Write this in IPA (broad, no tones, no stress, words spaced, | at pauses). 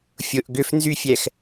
fʲʊʔ ɡʏfnzyfʲɛx